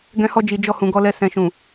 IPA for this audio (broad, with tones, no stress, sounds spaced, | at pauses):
ɡ ɛ̃˧ h ɔ˧ d͡ʒ i˨ d͡ʒ ɔ˧ h ũ˨ ɡ ɔ˧ l ɛ˧ s ɛ̃˨ ʃ ũ˨